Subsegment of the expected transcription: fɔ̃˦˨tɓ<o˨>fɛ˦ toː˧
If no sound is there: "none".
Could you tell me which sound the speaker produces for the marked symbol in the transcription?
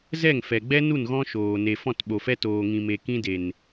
o˨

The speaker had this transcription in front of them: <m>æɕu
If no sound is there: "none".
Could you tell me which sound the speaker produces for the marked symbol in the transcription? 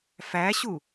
f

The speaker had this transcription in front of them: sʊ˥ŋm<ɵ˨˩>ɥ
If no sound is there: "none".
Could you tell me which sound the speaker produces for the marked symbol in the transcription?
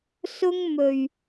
ɵ˨˩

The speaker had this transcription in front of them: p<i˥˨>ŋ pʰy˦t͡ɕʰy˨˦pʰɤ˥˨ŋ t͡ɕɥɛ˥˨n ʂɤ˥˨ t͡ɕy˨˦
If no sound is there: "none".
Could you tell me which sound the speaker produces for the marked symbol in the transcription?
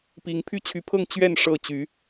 i˨˦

